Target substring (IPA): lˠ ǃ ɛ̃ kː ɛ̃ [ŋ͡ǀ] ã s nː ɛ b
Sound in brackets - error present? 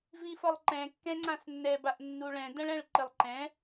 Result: no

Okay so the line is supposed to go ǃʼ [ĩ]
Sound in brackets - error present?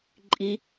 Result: yes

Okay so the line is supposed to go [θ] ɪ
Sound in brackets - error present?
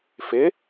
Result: yes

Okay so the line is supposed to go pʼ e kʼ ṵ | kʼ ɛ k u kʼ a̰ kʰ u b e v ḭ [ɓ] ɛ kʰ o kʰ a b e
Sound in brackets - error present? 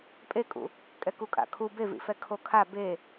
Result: yes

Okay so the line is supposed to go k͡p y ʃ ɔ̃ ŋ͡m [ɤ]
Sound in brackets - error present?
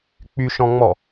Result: yes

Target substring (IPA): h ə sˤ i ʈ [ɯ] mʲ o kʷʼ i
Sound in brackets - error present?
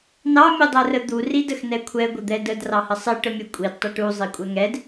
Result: yes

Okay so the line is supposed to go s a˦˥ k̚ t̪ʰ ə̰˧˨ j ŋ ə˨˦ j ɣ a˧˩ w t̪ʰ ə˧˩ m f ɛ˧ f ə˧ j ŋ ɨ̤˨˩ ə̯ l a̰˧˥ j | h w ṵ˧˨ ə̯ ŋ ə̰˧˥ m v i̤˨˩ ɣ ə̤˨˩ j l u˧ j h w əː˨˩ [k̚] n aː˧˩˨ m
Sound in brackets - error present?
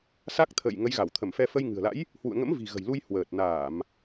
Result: yes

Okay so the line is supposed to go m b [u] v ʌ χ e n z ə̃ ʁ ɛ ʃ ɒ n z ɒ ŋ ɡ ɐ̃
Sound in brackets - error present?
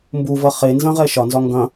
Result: no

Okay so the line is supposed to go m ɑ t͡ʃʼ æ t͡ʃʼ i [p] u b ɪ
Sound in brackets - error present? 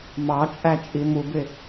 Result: yes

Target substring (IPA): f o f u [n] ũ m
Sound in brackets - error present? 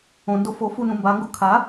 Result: no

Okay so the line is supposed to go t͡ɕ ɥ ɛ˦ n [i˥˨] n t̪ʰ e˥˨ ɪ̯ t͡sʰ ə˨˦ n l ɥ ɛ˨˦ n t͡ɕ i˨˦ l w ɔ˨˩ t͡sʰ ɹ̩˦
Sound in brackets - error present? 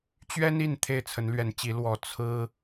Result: no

